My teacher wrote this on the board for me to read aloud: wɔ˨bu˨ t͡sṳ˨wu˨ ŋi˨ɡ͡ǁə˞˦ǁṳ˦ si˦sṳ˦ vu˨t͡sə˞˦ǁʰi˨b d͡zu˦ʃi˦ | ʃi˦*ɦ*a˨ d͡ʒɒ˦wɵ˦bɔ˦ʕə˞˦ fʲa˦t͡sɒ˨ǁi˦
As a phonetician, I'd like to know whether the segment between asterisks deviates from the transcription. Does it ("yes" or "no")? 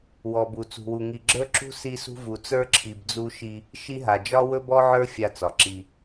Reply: no